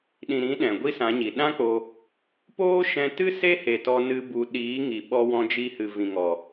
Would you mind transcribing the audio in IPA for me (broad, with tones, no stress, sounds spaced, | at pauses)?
ɗ ĩ˨ ɾ ĩ˨˦ ɗ ɛ̃˨ ɡʷ i˦ s ã˨˦ ɲ i˨ ɗ ã˦ k͡p o˧ | p oː˦ ʃ ɛ̃˧ t ɨ˦ s e˦ h e˨ t ɔ˧ n ɨ˧ b u˨ ɗ iː˨˦ ŋ i˨ ɓ ɔ˧ w ɔ̃˧ d͡ʒ i˧ h ɨ˨ v ĩ˨ ŋ ɔ˨